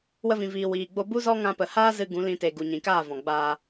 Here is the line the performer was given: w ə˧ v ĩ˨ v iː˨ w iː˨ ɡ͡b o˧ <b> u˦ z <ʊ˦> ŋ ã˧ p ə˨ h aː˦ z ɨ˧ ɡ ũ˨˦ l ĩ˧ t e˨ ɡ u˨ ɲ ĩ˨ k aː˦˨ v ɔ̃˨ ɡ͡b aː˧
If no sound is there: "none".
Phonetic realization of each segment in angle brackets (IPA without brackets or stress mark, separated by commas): b, ɔ˦